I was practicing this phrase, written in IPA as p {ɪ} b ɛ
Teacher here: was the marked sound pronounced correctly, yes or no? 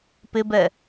yes